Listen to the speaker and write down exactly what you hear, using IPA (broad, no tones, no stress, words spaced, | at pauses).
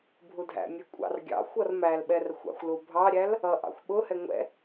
bʱudʱæ̰mʲɛ kʷʼɑ̰rɡʲɑ̰xʷʌr mælɓɛr xʷɑ̰xʷlu bʱɑɾʲæl | ʌʔɑ̰xʷ ɓʊhɛ ŋʷɛ̰